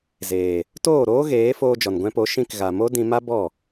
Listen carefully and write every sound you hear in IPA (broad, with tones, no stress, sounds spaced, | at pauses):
z eː˨ | t oː˦˨ ɾ oː˦ ɣ eː˨˦ f oː˧ d͡ʒ ɔ˨ n ɡʷ ɛ̃˧ p o˨˦ ʃ ĩ˧ k ɣ a˨ m o˦ d ĩ˧ m a˦ b ɔ˦˨